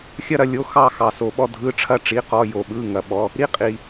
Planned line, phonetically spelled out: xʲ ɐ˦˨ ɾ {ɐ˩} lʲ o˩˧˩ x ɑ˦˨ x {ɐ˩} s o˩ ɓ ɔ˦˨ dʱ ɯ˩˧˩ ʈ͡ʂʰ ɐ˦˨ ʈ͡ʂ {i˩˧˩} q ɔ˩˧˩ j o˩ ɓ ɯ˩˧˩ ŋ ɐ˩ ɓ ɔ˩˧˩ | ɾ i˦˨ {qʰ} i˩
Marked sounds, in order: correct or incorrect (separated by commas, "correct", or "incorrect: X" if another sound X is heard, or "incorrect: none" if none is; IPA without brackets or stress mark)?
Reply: incorrect: ɐ˦˨, incorrect: ɑ˩, correct, incorrect: qʼ